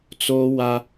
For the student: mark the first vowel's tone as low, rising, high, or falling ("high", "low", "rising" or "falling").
high